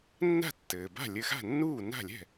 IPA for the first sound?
nː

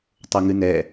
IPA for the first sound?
tˤ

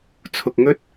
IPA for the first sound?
t͡sʰ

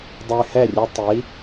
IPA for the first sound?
dˤ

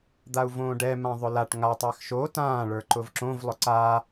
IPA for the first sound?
d̪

